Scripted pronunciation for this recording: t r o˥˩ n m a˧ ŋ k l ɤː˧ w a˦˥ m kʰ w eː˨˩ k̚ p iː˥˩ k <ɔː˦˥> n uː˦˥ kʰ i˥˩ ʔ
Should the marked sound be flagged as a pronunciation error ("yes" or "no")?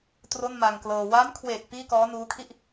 no